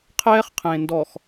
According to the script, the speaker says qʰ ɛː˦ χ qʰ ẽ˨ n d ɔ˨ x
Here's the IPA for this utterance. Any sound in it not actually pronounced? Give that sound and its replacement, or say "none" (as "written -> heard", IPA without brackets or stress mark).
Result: none